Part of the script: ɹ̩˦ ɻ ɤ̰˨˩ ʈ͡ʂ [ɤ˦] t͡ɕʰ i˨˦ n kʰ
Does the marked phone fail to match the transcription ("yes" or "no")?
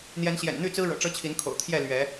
no